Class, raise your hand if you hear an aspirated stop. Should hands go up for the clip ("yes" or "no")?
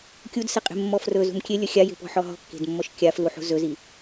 no